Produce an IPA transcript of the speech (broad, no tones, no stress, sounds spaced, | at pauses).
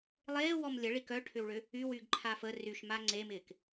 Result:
lˠ eː w ɔ m lʲ ə ɭ i k œ ʈʰ ʏ w ɭ ʏ | y w y ɡ ǃʰ a f ə r y ʃ m a ŋ͡ǀ e m ɪː k